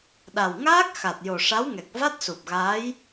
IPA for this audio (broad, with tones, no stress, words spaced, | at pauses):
ɗa˨˩wŋaː˦˥k̚ xa˨˩t̚jo˨˩ʂa˧˥wŋɛ˨˩k̚ va˦˥t̚su˨˩p̚ɣaː˧˥j